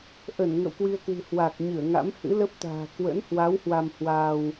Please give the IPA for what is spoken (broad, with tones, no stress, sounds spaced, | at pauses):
ʔ ə˧˩ n ŋ ə̰˧˨ w k w i˧ ə̯ k w ɨ̤˨˩ h w a˨˩ k̚ ɲ ɨ˧˩ ə̯ ŋ a̰˧˥ m h ɨ̰˧˥ l ə˦˥ p̚ t̪ a̤ː˨˩ k w ə̰˧˥ n h w a˨˦ w h w a˧ m h w aː˧ w